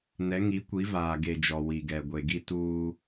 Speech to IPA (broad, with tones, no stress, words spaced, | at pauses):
nɛ˨˦ ŋi˨˦kʷi˨˦vaː˨ ɡe˨d͡ʒɔ˨ wi˨ɡɛ˨ ɡʷe˨ɡi˦ tuː˦